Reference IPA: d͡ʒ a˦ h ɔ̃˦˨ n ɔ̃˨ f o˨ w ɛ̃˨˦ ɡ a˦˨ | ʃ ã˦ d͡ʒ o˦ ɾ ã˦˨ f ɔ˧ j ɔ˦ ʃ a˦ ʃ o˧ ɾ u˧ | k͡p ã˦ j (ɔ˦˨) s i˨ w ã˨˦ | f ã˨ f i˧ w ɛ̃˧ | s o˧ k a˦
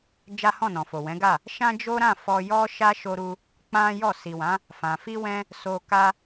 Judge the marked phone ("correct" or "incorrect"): correct